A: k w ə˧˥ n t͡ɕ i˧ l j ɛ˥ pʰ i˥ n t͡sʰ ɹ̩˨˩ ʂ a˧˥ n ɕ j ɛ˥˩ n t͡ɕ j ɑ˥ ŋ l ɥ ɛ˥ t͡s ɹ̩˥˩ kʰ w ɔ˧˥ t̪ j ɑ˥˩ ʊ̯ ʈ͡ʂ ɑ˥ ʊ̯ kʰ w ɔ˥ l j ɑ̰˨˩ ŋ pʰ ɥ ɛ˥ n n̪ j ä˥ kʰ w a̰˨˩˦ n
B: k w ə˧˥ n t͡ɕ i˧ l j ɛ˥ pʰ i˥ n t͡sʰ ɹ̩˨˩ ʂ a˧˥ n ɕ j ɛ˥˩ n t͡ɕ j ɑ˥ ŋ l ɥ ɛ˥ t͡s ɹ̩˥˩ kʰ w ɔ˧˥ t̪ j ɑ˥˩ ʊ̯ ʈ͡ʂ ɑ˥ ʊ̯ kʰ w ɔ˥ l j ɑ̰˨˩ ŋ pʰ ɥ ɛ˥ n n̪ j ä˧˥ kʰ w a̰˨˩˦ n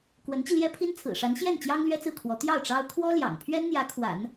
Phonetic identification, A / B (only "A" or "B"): B